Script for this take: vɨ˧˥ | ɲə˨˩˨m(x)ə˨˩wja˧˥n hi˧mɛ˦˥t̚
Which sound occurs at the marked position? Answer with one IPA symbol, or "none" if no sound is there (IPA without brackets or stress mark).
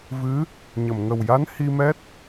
ŋ